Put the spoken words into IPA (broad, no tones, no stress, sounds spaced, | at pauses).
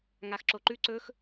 ŋ a x ǁ o ǃ ʉ ǀ ɵ x